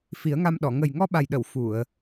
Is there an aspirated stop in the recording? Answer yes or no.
no